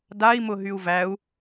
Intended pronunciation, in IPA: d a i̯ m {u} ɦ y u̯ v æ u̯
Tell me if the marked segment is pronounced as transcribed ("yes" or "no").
no